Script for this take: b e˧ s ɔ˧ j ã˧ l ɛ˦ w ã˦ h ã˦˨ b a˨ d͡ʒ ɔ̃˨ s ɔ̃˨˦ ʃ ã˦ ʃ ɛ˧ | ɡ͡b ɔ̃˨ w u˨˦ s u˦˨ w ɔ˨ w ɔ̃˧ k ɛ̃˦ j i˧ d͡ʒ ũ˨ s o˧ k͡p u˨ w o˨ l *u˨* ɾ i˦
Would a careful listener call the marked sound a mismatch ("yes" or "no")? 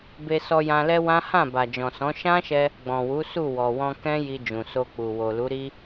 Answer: yes